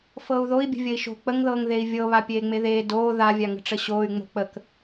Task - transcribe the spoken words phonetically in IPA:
f ɤː u̯ ð o i̯ bʲ ə̤ vʲ ə i̯ ʃ o̤ k͡p ə ŋ ð ɤː ŋ ð e i̯ vʲ ɤ β a pʲ eː ŋ͡m e ð eː d oː ð a vʲ a ŋ ə̤ ʈ͡ʂ ə ɕ oː y̯ ŋ͡m o̤ k͡p ə k

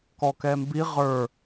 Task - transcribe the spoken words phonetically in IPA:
k ɔ k ɛ m b i ʁ ə˞

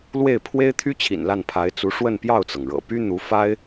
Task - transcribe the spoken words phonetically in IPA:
l w e˥˩ ɪ̯ pʰ w e˥ ɪ̯ t̪ʰ y˥ t͡ɕʰ ḭ˨˩ n l a˥˩ n pʰ a˧˥ ɪ̯ t͡s u˧˥ ʂ w ə˥˧ n p j ɑ˥˩ ʊ̯ t͡s ɤ˩ ŋ ɻ ɤ̰˨˩ p y˥ n̪ u˧˥ f a˥ ɪ̯

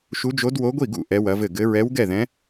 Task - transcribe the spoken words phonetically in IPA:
ʃ u˧˥ d͡ʒ o˧˥ d w o˧˥ ɡʷ i˥˩ ɡ ṵ˥˩ ʔ ɛ˧˥ w ɐ˧˥ v ɘ˥˩ ɡ ɘ˧˥ ɹ ɛ˧˥ w ɡ ɛ˥˩ ð ɛ̃˧˥

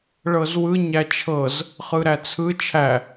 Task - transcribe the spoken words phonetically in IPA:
ɭ ɤ z w ɯ ɲ æ t͡ʃʰ ɤ z | χ ɯ ɾ æ t͡sʰ ɯ t͡ʃʰ æ

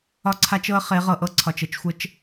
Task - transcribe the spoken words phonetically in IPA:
ɒ˦ ǀʰ a˦ t͡ʃ ɤ˦ ə̯ χ e˨˦ ʁ ɤ˨ ʔ ɤ˦ ǀʰ ɒ˨ t͡ʃ ə˦ t͡ʃ xʷ ə˦ t͡ʃ

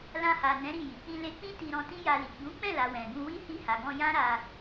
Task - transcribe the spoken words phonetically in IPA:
l ã˧ h a˨ n ɛ̃˨˦ ɾ i˦˨ j i˨ k͡p ĩ˧ l e˧ k͡p ĩ˦ t i˧ ɾ ɔ̃˧ t ĩ˦ j a˧ l i˨ ɡ͡b ũ˨˦ k͡p ɛ̃˦˨ l a˨ w ɛ̃˨ ɡ ũ˧ w i˦ h i˧ h a˨ ɡ ɔ̃˧ j ã˦ ɾ a˧

